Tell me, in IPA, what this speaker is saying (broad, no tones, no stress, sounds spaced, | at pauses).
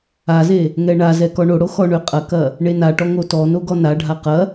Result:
a z e | ŋ ɛ ɳ a z ɛ k ɔ ɳ o ɽ o x ɔ ɳ ø qʼ ɐ k ɐ | ɳ e n a ʈ ɔ ŋ o t ɔ n o ɡ ɔ n a ɖʱ a q ɐ